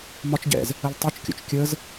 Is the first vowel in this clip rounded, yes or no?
yes